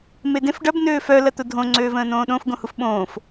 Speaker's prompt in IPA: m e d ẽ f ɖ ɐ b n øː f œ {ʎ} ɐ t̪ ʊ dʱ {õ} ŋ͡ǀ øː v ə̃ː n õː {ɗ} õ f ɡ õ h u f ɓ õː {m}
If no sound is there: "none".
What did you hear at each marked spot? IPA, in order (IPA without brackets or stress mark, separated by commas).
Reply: l, õ, ɗ, f